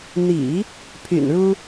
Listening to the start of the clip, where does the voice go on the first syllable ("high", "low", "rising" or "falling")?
low